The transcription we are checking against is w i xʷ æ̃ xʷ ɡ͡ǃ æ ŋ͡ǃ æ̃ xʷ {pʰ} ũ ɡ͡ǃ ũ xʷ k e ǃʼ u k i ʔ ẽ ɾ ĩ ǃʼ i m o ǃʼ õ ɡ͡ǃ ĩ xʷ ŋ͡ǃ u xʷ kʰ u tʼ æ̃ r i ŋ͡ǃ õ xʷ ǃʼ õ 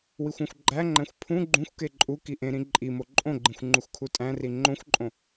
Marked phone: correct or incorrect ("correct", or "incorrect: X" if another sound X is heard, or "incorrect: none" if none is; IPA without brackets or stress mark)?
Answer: correct